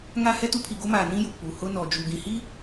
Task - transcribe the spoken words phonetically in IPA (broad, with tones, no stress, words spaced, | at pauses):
ŋa˦hɛ˦ tu˦pʰi˨ɡo˦maː˨ nĩ˦ju˨ k͡pu˨hʊ˦ nɔ˨d͡ʒu˨ ɡĩ˨hi˦